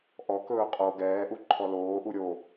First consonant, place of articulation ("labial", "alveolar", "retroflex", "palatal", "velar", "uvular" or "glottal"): glottal